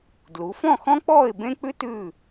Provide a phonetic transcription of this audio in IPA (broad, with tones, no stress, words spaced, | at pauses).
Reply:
dlu˩˧fɔ̃˥˧xɔ̃˥ k͡pɔː˥˧ɪ̯bẽ˥k͡pʉ˥t ʉ˥˧